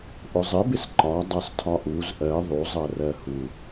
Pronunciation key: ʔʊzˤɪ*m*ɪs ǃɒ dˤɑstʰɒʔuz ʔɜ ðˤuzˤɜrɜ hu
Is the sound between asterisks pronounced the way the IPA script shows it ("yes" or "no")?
no